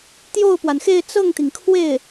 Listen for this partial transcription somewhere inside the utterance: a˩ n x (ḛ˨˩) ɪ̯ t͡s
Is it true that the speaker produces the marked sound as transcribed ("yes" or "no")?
no